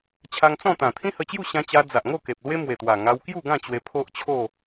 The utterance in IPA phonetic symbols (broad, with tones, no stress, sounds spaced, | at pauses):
t͡ɕʰ a˧ ŋ t͡s ɔ̃˥˧ t̪ ã˨˩ t̪ʰ ĩ˦ h ə˧ t͡ɕ j u˥˧ ɕ ã˧ t͡ɕ a˧ d͡z a˨ ʔ ŋ o˥˧ k e˨ p̚ l w e˦ m w e˨˩ t̪ w a˨˩ ŋ a˧ w k j u˥˧ ɡ ã˥˧ t͡ɕ w e˧ pʰ o˦ ʔ t͡ɕʰ o˥˧